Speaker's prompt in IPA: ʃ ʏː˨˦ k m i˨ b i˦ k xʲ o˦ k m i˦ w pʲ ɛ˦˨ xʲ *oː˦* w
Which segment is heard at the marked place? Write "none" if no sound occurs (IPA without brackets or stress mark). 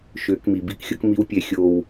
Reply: oː˦